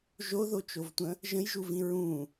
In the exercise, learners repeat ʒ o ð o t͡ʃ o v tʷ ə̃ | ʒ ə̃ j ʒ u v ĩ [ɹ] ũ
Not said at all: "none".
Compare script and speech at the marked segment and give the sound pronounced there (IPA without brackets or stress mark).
ɹ